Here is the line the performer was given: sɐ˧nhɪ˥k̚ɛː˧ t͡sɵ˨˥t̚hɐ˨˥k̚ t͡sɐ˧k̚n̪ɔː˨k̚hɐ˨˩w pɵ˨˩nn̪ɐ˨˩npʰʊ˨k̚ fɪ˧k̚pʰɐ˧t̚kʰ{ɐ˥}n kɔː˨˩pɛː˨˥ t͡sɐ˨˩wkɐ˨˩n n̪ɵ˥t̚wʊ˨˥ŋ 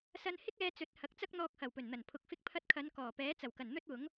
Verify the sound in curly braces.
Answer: incorrect: ɐ˨˧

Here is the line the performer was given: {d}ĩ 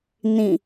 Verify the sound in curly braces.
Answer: incorrect: n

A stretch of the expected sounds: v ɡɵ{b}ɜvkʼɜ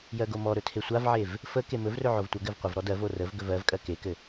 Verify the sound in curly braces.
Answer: incorrect: v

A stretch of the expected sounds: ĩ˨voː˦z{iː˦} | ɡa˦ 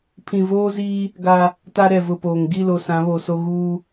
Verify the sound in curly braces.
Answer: correct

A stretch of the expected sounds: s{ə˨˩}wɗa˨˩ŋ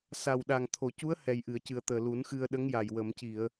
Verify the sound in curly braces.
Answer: incorrect: a˨˩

